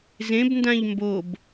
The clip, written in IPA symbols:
zẽbndãʎ mbob

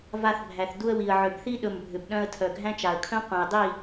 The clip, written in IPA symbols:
va˧θbʱæ˨θdu˧ə̯ wi˨ə̯ʕʏ˨b θi˦ɗɵ˨mbʱʏ˨bɗœ̃˧ə̯ tʰœ˨ɡʱæ̃˦t͡ʃa˨ə̯kʰœ̃˦ qʷœ̃˨ɪ̯dˤi˦˨

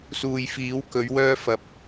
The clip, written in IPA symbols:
suː˨jfiː˨˥w kɵ˨˥ɥwœː˥fɐ˧p̚

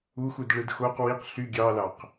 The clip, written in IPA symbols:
uxudɭɯd xoq wiq ɬy ɡʲɑlɑq

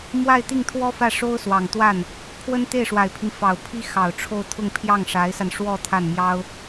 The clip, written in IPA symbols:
mwa˥˧ɪ̯t̪i˥˩ŋt̪ʰwɔ˥ fä˥˩ʂo˥ʊ̯ swɑ˨˩ŋt̪wa˥˩n | pʰwə˥nt̪e˥˩ɪ̯ʂwa˨˩ɪ̯pʰi˦n fɑ˨˩ʊ̯pʰi˥ xɑ˨˩ʊ̯ʈ͡ʂʰo˥˧ʊ̯t̪ʰʊ˥˧ŋ pʰjɑ˥˩ŋʂa˧˥ɪ̯sa˧nʂwɔ˥˧ t̪ʰa˥˩nmjɑ˥ʊ̯

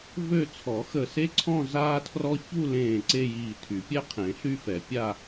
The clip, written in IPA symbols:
vø˥˧ t͡sʰɔ˨˩˦xə˧˩se˥ǀʰɔ̃˥˧ zaː˥tʰrɔ˥ çu˥˧lẽː˧˩ ǀe˥˧jiː˧˩tʰy˨˩˦pʲɛ˥ qʰẽ˨˩˦ɬy˥fɛ˨˩˦ pʲa˥˧

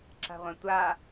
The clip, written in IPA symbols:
ǁa̤ʁʷɛ̃tʷa

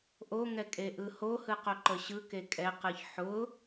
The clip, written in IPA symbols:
ʔoŋɛkʼe ʔɯhohɯ qoǃəɕɯke kʼɛqɯç ħʊ

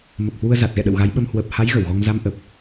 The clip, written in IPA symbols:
mə˨˩p̚hwu˧ə̯ za˨˩t̚ɣɛ̰˧˨ɗə̰˧˨w ɣa˨˦jɓə˧m hwəː˨˩p̚ha˨˦j ɣə˧˩wɣɔ˧ŋ za˧mʔə˨˩p̚

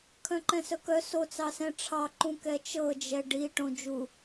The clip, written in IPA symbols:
kʰœ̃ǃɛ̃sœkœ sot͡sɑsɛ̃ ʈ͡ʂʰɑǃũ kɛt͡ʃɤ d͡ʒɛɖiʈõ d͡ʒu

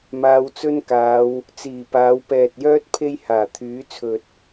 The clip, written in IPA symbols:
maː˧wt͡sɵ˥nkaː˨˧w | t͡siː˨˩paː˨˧wpɛː˨t̚jœː˥t̚ pʰe˥jhaː˨˩t̪ʰyː˨˥t͡sʰɵ˨t̚

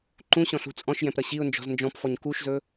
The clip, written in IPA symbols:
ǃũɕɔ̃ɬṳ t͡sʼɔ̃ʃjɛ̃pɾʌ ɕiʊ̯nd͡ʒɔ̤z nd͡ʒɔ̃pfɔɲ kuʃzɵ

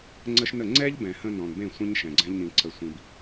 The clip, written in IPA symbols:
ŋ͡ǀə˦ʃnə˦˨ ŋ͡ǀɛ˦ʎbɛ̃˨hə̃˧ nɔ̃˨nbẽ˦˨ sʷə̃˦ɲ ʃɛ̃˨ɡ͡ǀɛ̃˦ʎnĩ˧ ǀə˧sʷĩ˧b

